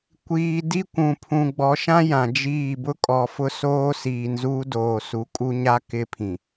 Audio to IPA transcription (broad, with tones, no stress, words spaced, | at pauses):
kʷiː˨ di˦kʷũ˨ pʰũ˨ ɡ͡bɔ˨˦ʃã˦ jã˨d͡ʒiː˦˨ bʊ˦kʼɔ˨fʊ˦ soː˦siː˨n zuː˦doː˨su˨kʼu˦ ɲa˦ kɪ˦pʰĩ˨